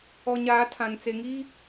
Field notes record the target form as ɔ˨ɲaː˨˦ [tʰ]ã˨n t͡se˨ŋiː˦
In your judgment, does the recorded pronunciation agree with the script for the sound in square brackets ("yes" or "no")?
yes